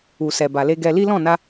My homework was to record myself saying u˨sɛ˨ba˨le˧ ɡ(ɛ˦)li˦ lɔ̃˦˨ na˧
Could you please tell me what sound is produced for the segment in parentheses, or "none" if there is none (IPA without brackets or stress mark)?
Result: ɛ˧